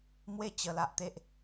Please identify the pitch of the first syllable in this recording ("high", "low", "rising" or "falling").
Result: falling